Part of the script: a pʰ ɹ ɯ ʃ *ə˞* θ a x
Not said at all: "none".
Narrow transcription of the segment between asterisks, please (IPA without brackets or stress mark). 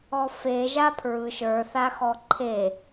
ə˞